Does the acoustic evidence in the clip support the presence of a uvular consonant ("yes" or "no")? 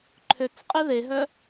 yes